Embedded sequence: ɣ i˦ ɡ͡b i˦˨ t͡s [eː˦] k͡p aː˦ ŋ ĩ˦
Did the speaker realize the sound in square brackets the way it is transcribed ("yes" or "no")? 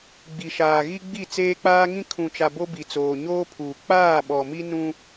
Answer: yes